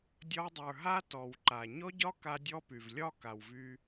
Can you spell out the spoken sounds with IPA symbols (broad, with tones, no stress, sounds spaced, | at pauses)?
dʲ ɒ˧ w dˤ ə˞˨ ɦ a˦ t ɔ˨ w ǃ a˨ ɲ ɔ˦ ɟ ɒ˦ k a˦ dʲ ɔ˦ p y˨ v lʲ ɒ˦ k a˨ w v y˧